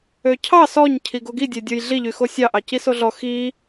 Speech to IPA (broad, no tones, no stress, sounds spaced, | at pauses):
ø cʰ ɑ s ɔ ɲ cʰ i ɡ o ɡ i dʲ ø dʲ o j ɮ i ʎ y x o sʲ ɑ ʔ ɑ c i s o ɮ ɔ x i